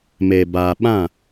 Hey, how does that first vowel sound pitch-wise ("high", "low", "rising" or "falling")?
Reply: low